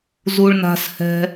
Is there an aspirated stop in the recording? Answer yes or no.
no